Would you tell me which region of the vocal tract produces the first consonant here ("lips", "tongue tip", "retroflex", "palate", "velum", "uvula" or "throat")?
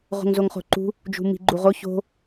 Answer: uvula